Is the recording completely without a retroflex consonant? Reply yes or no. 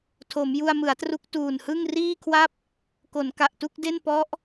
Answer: yes